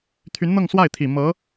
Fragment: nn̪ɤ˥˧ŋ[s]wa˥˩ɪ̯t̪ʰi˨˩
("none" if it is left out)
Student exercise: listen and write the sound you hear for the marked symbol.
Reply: s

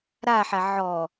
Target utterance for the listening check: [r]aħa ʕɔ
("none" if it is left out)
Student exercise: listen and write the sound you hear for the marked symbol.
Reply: ɾ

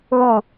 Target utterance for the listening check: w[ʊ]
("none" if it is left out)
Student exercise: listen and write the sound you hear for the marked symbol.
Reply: u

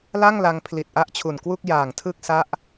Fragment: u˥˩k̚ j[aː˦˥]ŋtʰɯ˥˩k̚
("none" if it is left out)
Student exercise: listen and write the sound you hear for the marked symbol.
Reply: aː˨˩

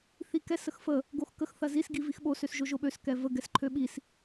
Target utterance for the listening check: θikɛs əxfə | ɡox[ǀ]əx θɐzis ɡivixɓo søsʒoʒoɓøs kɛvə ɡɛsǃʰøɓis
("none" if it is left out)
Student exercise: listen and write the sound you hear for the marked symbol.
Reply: k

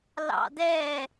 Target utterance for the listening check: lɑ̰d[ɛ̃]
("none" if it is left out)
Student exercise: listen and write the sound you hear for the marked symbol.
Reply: ɛ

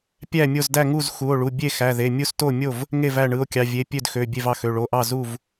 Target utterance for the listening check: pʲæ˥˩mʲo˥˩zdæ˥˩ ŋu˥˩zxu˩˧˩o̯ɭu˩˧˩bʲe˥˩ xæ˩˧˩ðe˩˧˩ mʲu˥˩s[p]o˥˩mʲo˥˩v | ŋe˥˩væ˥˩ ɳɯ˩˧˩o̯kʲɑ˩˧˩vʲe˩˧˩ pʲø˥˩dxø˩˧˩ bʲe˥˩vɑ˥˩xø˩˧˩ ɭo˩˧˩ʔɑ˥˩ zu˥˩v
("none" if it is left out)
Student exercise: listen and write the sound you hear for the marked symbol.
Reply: t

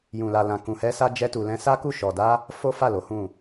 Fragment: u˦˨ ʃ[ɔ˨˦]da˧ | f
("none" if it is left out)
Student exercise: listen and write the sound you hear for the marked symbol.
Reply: ɔ˨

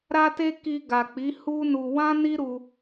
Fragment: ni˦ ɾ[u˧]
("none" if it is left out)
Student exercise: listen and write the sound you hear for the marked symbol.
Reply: u˧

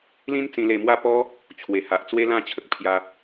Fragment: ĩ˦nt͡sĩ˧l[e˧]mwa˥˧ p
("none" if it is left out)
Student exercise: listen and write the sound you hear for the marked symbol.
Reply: e˧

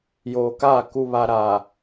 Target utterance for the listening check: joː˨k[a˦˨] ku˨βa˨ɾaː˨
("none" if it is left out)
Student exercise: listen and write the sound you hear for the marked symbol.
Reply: aː˦˨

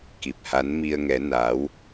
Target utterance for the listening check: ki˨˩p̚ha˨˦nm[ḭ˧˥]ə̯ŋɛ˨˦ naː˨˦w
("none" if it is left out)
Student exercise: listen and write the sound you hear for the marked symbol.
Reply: i˧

